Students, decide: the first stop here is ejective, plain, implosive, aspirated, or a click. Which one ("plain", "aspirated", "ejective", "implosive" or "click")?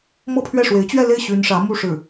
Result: aspirated